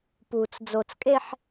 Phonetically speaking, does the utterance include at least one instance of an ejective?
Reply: yes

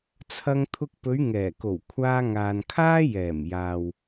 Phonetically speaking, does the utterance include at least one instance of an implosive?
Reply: no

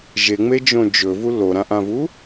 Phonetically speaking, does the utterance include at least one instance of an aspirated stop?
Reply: no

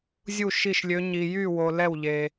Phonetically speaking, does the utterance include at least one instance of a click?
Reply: no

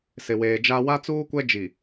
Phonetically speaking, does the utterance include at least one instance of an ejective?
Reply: no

